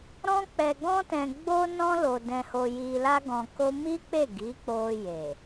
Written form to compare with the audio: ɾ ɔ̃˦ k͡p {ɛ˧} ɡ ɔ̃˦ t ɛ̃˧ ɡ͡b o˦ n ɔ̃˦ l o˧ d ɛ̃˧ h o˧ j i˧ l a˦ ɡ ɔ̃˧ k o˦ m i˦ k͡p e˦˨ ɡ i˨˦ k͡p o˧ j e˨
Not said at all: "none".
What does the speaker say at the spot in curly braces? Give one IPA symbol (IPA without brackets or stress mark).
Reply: ɛ˧